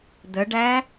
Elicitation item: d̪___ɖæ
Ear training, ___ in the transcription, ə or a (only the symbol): ə